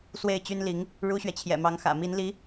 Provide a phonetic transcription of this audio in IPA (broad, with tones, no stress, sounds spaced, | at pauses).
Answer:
s w e˥˩ ɪ̯ t͡ɕ y˥ n l i˧˥ ŋ | ɻ u˥ ɕ ɥ ɛ˨ t͡ɕʰ j ɛ̰˨˩ m ɑ˧˥ ŋ x ä̰˨˩ m i˧˥ n l i˧˥